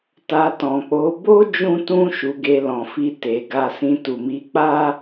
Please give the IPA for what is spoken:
t a˧ t ɔ̃˨ k͡p o˨˦ b o˦ d͡ʒ ũ˦ t ũ˦ ʃ u˧ ɡ e˧ l ɔ̃˨ f i˧ t e˨ ɡ a˧ s ĩ˧ t u˨ m i˨˦ k͡p a˦

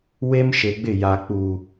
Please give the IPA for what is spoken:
w e˦ m ʃ e˨ ɡ͡b ɪ˦˨ j a˨ k͡p u˨

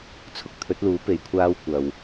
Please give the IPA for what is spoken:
t͡sʰ ʊ˥ k̚ t̪ʰ ɵ˨˥ t̚ l uː˨˥ p e˨˧ j kʷʰ aː˥ w kʷ ɐ˨ w

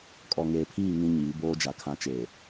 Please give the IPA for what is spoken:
kʼ ɔ˨ ŋ eː˨ pʰ iː˦˨ ŋ ĩ˦ ɲ iː˨˦ b oː˦ d͡ʒ a˨ kʰ ã˨˦ t͡ʃ eː˨

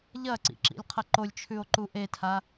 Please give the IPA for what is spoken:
ʎ ɐ ǀ ḭ ǁ ḭ lʲ qʰ ɐ ǃ o lʲ t͡ʃʰ ʉ o̯ ǃ u ʔ e tʰ a

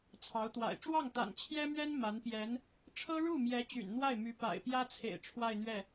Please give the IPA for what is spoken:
t͡sʰ ɑ˧˥ ʊ̯ t̪ w a̰˨˩ ɪ̯ ʈ͡ʂ w ɑ˥˩ ŋ t̪ a̰˨˩ n t͡ɕʰ j ɛ˥ m ɥ ɛ˥ n m a˧˥ n p j ɛ˧˥ n | ʈ͡ʂʰ ɤ˥ ɻ u˥˩ m j ɛ˧˥ t͡ɕ y̰˨˩ n n̪ w a˥˩ ɪ̯ m y˧˥ p a̰˨˩ ɪ̯ p j ä˥ t͡sʰ ḛ˨˩ ɪ̯ ʈ͡ʂʰ w a˥˧ ɪ̯ n̪ ɥ ɛ˥˩

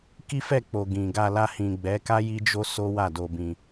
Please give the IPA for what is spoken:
k i˦ f ɛ˦˨ k͡p o˨ ɡ ĩ˨ ɡ a˧ l a˧ h ĩ˨ ɡ͡b ɛ˨˦ k a˦ j i˦ d͡ʒ o˦ s o˦ w a˦˨ d o˧ b ĩ˧

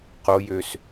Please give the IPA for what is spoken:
q o j ø s

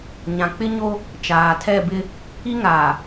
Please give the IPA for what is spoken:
ɲ ã˨ k͡p ɪ˦ ɲ o˦ | t͡ʃ aː˨ tʰ ɛ˦˨ b ɪ˦ | i˦ ŋ aː˨

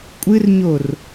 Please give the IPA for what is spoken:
kʷʼ ɨ r ɲ o r

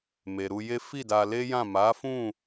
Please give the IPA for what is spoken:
m e˨ ɾ u˧ j e˦ f i˦˨ d a˧ l e˦ j ã˦˨ m a˨˦ f ũ˦˨

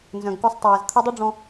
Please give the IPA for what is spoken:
n z œ̃˨ ɡ k u˧ sˤ tˤ ɛː˨ z t̪ʰ u˧ dˤ u˦ ɖ͡ʐ ɔ̃˧

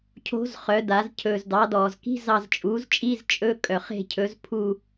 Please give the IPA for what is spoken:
cʰ o̤˧˥ z χ œ˩˧ d a˩˧ z cʰ ɵː˩ z d ɑ˩˧ d ɔː˩ z k i̤˧˥˧ z ɑ˦˨ z t͡ʃʼ uː˩˥ z t͡ʃʼ i˧˥˧ z t͡ʃʼ ɵ˧˥˧ kʼ œ˩ χ e̤˦˨ cʰ ɵ˩˥ z pʰ u˦˨

